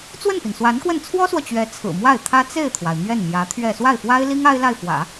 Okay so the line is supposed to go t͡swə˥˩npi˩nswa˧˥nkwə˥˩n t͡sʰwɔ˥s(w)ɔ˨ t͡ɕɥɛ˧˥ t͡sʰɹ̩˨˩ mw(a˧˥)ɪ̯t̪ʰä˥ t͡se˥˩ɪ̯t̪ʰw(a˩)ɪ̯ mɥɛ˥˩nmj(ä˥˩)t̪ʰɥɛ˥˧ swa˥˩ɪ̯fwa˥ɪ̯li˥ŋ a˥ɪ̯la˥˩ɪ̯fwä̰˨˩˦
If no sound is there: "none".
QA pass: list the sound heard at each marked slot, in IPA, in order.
w, a˥˩, a˩, ä˧˥

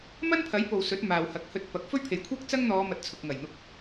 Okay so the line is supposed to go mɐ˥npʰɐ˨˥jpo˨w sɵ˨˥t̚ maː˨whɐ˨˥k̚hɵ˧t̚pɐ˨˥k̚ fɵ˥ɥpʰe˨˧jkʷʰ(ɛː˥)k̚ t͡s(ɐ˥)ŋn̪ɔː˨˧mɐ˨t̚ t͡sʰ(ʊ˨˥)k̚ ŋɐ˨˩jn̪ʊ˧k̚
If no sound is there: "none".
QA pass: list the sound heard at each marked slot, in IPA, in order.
ɛː˥, ɐ˥, ʊ˨

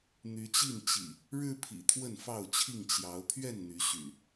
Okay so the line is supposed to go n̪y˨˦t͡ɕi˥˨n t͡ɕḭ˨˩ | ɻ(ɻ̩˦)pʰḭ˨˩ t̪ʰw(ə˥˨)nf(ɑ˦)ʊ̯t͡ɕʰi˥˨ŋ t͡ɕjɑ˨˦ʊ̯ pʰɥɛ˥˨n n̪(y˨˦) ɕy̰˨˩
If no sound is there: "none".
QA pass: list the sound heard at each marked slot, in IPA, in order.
ɻ̩˦, ə˥˨, ɑ˥˨, y˨˦

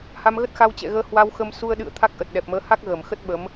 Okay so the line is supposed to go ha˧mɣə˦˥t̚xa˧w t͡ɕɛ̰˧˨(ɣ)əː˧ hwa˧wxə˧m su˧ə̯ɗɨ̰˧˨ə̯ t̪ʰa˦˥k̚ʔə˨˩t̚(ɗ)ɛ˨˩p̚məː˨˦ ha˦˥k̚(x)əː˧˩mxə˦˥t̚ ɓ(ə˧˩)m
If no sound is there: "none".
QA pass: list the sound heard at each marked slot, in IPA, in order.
ɣ, ɗ, ɣ, ə˨˦

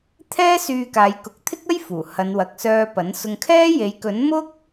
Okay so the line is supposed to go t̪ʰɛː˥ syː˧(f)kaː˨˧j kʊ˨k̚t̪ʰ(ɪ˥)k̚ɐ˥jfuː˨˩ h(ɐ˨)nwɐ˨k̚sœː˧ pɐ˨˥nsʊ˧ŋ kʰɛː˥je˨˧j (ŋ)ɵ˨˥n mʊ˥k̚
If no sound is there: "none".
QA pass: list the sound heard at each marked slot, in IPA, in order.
none, ɪ˥, ɐ˨˧, k

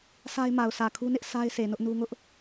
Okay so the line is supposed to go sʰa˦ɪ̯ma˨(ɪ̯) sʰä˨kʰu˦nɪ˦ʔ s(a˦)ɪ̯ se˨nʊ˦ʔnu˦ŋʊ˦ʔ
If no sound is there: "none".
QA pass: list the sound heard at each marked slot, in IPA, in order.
ʊ̯, a˦

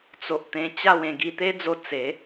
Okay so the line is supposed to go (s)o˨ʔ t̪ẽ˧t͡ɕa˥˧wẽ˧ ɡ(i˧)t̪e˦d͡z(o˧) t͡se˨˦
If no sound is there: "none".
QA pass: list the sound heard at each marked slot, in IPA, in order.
t͡s, i˧, o˧

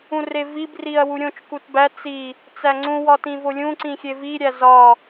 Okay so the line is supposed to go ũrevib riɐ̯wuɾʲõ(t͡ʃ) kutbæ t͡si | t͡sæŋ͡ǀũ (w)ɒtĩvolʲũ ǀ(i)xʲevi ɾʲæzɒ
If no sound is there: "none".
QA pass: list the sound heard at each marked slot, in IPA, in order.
t͡ʃ, w, ĩ

